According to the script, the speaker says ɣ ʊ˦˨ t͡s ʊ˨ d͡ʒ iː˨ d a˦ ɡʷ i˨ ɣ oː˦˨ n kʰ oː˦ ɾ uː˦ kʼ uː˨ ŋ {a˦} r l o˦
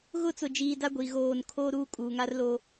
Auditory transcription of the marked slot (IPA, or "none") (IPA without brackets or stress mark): a˦